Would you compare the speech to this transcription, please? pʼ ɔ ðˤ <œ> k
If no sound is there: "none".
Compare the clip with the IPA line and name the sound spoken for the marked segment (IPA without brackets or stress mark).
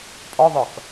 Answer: œ